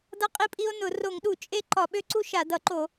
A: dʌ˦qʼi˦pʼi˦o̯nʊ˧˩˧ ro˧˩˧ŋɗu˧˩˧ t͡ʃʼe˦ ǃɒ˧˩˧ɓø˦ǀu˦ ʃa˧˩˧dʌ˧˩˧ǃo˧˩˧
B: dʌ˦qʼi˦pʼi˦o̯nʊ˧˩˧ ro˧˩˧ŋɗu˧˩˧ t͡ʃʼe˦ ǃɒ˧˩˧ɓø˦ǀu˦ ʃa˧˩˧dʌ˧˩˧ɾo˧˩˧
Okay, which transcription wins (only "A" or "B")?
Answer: A